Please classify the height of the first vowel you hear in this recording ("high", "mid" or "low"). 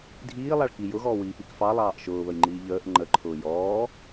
high